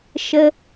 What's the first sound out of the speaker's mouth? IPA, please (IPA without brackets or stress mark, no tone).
ʃ